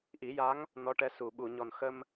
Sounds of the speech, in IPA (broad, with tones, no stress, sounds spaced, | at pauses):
ʔ i˨˩˦ j a˧˥ ŋ | n ɔ˧˥ ʈ ɛ˧˥ s u˨˩ ɓ u˨˩˨ ɲ ɔ˨˩ n x ə˧ m